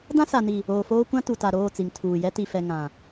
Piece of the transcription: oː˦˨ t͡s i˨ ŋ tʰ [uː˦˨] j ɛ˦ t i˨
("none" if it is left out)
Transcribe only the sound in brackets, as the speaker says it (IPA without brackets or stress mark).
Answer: uː˨